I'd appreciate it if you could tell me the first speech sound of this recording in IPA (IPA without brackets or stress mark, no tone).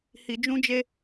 h